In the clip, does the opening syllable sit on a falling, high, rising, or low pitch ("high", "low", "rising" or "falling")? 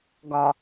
low